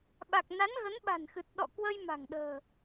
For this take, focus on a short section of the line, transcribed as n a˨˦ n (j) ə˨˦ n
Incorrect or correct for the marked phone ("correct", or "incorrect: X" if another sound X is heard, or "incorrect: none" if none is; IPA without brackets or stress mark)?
incorrect: ɣ